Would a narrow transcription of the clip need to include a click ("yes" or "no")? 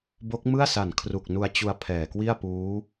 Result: no